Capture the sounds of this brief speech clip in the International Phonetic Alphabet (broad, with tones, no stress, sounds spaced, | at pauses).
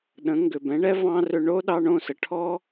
ɗ ə̃˩˥ ŋ ɡ ʏ˩ b ɛ̃˩˥ ɳ ɛ˥ v ɑ̃˥ r ʏ˧ ɳ o˥ ɗ ɑ˥ ɳ õ˥˩ s ə˩ ʈʰ ɔ˥